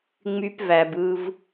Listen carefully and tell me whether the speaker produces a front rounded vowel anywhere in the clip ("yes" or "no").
yes